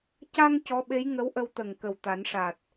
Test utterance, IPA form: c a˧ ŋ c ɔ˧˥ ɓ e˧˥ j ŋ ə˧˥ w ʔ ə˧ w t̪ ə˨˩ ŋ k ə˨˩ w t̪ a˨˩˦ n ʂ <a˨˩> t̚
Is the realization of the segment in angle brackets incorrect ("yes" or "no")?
no